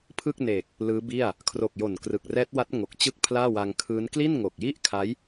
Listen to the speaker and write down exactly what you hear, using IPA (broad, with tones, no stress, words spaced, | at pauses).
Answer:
pʰɯ˥˩k̚ne˨˩k̚ | lɯː˦˥bi˥˩a̯ | kʰro˨˩k̚ jo˨˩nkrɯ˨˩k̚rɛː˦˥t̚wa˦˥t̚ ŋo˨˩k̚t͡ɕɯ˥˩k̚ pʰlaː˥˩wa˧ŋkʰɯː˦˥n kli˥˩nŋo˨˩k̚ji˥˩ʔkʰa˦˥j